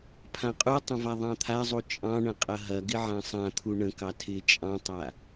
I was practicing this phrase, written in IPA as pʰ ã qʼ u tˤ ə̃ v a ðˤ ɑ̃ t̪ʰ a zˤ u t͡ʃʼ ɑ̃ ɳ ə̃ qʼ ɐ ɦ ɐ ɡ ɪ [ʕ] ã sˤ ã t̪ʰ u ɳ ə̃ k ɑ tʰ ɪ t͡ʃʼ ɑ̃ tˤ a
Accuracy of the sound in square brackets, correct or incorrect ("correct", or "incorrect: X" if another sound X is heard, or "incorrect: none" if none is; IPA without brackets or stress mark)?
correct